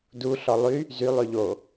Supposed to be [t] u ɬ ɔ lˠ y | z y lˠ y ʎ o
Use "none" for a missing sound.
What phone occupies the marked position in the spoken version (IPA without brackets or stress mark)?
d